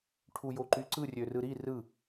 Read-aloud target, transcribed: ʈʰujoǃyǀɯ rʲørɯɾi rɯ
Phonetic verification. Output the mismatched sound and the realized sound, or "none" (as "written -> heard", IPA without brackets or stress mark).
none